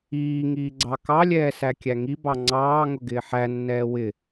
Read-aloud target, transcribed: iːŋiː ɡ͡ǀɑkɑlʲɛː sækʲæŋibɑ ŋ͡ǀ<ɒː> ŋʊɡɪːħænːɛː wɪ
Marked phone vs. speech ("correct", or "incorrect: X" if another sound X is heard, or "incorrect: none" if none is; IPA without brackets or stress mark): incorrect: ɑː